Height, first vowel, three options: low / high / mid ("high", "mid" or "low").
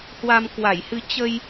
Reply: low